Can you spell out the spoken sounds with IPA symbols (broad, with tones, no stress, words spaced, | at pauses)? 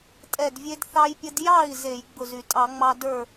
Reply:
tʼɛ˧˩dvʲe˧dθɑ˧jpʲə˧d jɑ˥˩i̯ ze˧˩˧jɡ͡bʊ˧˩zy˧˩˧ tʼɑ˧˩˧ŋ͡mɑ˧ də˞˥˩